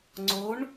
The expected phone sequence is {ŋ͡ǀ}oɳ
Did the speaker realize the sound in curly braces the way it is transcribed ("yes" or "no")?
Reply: yes